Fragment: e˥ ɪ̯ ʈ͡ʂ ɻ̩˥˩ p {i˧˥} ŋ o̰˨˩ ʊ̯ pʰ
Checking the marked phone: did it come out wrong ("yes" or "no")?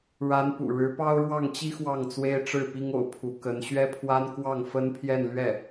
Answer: yes